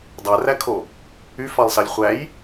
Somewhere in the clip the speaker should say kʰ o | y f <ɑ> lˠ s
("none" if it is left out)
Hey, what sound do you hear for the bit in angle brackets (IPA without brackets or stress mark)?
ɑ